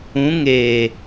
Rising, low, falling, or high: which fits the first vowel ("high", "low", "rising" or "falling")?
rising